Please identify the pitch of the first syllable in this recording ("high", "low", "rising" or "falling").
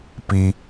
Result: high